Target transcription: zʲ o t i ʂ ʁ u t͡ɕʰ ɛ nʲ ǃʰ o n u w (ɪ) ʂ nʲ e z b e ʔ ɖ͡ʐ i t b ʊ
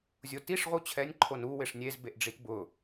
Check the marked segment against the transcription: correct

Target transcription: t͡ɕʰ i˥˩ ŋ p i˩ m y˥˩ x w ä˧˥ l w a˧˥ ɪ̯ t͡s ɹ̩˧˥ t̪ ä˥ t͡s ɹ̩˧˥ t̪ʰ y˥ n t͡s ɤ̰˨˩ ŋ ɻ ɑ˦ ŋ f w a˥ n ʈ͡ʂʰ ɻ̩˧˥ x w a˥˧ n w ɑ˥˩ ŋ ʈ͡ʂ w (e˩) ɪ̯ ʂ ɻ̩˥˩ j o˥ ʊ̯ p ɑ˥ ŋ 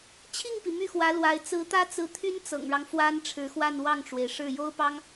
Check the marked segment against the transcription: correct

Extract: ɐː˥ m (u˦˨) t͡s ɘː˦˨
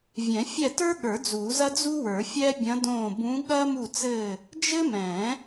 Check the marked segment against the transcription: correct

